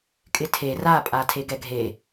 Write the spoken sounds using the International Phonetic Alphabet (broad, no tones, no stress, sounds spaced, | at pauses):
kʼ ɪ tʰ e r a pʼ a tʰ e ɡ ɛ ɡʱ e